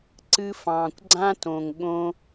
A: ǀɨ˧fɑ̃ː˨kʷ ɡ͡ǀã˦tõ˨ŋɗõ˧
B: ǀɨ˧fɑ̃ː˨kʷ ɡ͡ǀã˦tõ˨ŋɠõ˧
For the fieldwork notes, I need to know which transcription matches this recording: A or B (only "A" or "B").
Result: B